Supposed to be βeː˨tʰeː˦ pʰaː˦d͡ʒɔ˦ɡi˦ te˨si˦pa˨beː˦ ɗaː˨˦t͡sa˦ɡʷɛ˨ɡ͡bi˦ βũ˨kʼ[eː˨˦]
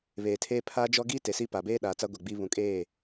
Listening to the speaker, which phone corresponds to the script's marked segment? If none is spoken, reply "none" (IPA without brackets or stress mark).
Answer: eː˦˨